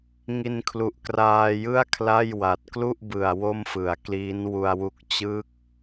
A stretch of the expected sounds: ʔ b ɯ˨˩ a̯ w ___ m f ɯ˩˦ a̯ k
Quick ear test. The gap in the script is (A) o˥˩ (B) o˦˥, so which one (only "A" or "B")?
A